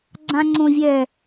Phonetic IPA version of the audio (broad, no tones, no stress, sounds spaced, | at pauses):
ɡ͡ǀ ã ŋ͡ǀ õ vʲ ɛ